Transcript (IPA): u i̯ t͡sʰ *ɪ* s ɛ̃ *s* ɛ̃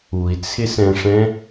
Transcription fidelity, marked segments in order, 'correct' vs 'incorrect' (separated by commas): correct, incorrect